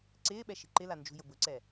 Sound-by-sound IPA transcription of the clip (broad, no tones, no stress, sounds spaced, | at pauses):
ǀ ɪː ɓ ɛ ʃ i̤ ǃ ɪ l a n d͡ʒ ṳ j ʊ b ʊ ǀ ɛ